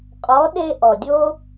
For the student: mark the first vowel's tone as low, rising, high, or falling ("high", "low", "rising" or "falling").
rising